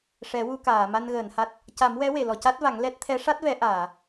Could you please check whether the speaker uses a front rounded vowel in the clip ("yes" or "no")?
no